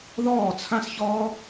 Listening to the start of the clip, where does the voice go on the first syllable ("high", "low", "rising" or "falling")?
falling